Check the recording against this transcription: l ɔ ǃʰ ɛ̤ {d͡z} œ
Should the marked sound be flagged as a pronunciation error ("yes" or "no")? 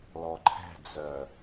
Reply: no